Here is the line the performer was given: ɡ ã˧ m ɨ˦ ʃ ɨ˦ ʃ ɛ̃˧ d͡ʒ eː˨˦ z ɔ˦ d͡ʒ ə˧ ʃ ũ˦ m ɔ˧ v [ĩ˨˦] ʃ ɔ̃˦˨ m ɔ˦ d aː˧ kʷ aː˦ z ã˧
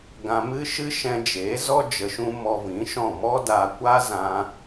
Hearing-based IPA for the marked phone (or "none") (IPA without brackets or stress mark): ĩ˨˦